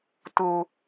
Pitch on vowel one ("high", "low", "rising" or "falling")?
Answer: low